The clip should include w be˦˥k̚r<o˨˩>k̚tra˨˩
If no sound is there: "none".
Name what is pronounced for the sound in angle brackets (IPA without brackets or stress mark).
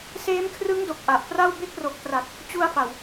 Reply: o˨˩